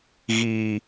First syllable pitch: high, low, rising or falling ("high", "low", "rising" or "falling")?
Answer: low